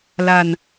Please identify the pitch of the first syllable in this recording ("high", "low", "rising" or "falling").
low